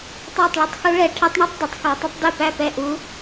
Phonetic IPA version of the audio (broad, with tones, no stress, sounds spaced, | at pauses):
tˤ æ˥˨ tˤ ɭ u˧˥ tˤ x u˧˥ ɭ ɛ˨˩˦ ʈʰ ɛ˧˥ tˤ ɳ o˥˨ tˤ d ɐ˨˩˦ tˤ x ɔ˨˩˦ tˤ ɐ˧˥ tˤ d e˥˨ p æ˥˨ p ɛ˥˨ ʔ u˧˥